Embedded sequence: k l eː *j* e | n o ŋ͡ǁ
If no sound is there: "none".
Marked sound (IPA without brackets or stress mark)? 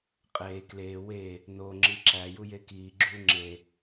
w